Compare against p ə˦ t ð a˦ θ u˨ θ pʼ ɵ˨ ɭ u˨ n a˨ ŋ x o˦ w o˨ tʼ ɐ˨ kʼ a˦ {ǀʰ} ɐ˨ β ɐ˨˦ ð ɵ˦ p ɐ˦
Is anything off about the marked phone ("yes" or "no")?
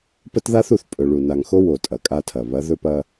yes